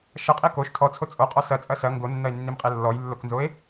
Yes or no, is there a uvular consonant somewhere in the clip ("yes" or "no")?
yes